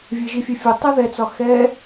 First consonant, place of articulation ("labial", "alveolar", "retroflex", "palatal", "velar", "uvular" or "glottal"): labial